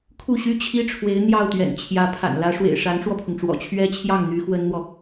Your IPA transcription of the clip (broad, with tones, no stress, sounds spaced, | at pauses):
kʰ u˥˩ ɕ y˥ t͡ɕʰ i˥ ʈ͡ʂʰ w e˧˥ ɪ̯ n̪ j ɑ˥˩ ʊ̯ t̪ ɥ ɛ̰˨˩ n t͡ɕʰ j ä˧˥ pʰ a̰˨˩ n l ä˧˥ ʂ w ḛ˨˩ ɪ̯ ʂ a˧˥ n ʈ͡ʂ w ɔ˧ pʰ ʊ˩ ŋ ʈ͡ʂ w ɔ̰˨˩ t͡ɕʰ ɥ ɛ˥ t͡ɕʰ j ɑ˥˩ ŋ n̪ y˧˥ x w ə˥ n n̪ w ɔ˨